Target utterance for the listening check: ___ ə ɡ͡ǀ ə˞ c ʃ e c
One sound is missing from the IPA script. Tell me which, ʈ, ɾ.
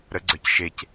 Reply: ɾ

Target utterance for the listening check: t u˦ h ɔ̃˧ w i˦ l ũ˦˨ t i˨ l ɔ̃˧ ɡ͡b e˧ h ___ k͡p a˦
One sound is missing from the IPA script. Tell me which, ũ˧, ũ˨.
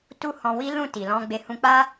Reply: ũ˧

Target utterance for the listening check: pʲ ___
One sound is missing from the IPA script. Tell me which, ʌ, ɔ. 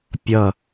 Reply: ʌ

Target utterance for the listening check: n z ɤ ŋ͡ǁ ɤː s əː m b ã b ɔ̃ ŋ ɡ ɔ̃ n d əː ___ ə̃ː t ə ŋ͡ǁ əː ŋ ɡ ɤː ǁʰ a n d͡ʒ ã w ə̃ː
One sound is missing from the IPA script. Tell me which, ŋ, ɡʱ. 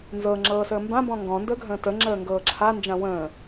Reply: ɡʱ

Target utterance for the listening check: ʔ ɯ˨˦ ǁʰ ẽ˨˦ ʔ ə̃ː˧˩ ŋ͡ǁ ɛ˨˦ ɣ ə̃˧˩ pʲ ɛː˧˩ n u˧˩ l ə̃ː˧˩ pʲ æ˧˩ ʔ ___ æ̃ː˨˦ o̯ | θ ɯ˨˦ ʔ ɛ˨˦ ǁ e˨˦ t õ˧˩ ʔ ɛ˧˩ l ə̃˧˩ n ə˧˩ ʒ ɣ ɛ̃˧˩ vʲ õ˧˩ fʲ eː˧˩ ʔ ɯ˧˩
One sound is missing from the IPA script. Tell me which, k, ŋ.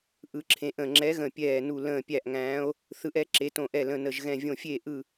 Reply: ŋ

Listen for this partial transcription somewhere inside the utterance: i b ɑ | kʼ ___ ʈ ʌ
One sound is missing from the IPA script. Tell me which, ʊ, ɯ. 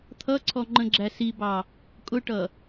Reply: ʊ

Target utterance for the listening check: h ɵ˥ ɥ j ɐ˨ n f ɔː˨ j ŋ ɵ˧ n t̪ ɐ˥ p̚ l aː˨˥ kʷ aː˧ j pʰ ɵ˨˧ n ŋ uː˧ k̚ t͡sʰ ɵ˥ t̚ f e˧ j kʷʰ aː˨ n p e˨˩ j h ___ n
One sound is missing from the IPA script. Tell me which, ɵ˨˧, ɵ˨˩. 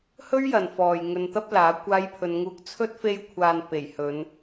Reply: ɵ˨˧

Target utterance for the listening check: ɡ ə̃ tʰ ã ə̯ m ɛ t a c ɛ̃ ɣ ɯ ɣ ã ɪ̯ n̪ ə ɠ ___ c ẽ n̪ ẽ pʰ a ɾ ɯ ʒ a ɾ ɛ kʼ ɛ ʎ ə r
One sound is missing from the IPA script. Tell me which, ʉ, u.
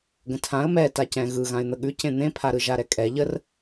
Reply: ʉ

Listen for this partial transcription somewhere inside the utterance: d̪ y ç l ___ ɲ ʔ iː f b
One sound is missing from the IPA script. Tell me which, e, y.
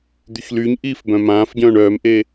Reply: y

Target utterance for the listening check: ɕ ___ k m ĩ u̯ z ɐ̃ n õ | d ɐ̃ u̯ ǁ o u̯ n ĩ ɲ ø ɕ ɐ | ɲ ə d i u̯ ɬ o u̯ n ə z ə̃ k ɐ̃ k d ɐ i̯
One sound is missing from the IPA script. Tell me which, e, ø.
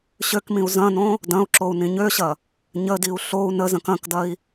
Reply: ø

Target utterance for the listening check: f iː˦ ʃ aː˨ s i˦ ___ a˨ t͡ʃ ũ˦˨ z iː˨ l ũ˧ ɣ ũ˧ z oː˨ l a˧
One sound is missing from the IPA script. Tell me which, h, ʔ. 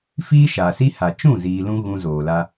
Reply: h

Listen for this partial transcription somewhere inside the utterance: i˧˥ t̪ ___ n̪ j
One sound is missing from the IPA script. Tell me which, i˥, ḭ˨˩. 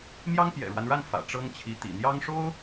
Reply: ḭ˨˩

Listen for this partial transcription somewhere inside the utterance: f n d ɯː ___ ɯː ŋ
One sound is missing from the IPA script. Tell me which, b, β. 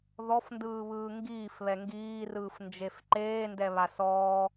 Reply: β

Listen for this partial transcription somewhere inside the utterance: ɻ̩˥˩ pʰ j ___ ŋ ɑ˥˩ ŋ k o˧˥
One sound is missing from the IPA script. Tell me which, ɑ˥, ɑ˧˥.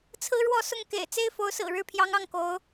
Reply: ɑ˧˥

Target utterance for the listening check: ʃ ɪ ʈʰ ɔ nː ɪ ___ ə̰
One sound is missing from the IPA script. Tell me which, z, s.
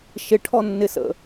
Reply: s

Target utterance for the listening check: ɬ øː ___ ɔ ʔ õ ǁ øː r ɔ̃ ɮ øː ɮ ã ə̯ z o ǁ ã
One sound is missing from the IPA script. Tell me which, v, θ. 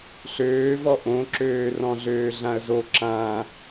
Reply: v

